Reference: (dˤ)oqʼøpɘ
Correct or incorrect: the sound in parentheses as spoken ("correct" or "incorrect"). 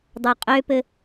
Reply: correct